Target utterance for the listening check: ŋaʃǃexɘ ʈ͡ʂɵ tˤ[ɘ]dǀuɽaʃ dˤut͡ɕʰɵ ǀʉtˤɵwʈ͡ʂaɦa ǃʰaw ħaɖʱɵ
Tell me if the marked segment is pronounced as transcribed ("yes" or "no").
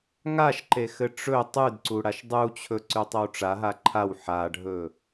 no